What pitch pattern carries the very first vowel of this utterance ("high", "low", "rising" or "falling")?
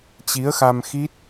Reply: rising